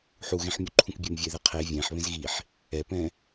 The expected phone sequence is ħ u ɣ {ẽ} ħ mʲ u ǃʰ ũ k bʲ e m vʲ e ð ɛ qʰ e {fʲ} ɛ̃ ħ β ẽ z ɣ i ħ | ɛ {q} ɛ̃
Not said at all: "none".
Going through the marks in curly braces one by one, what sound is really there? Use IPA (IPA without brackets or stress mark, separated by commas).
ẽ, vʲ, p